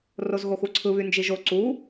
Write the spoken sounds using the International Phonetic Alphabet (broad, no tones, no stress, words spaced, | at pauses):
rozɣoxuǀʰɯ βynd͡ʒiʒo ǀu